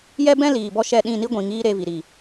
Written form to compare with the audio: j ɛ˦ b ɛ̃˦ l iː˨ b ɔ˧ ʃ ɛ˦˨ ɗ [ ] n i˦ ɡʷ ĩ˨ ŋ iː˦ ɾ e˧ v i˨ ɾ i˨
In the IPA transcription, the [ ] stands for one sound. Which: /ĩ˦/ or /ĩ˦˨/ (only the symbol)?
ĩ˦˨